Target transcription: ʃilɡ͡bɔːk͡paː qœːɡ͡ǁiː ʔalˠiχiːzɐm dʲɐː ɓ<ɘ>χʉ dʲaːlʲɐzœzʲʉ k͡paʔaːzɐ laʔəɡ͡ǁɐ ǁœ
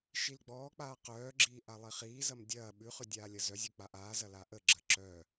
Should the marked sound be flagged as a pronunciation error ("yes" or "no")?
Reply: yes